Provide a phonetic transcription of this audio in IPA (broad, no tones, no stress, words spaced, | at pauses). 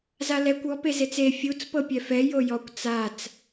zalɛkʷ ɔ pezet͡se fʲut͡s pɤpʲɛfɛ jojɔkʷ t͡sat͡s